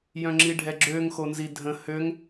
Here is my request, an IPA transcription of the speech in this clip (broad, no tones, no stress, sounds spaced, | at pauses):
j œ̃ ŋ͡ǁ i ɖʱ ɛ ɡ͡ǁ ø ŋ x o n z i dʱ ə̃ h ø ŋ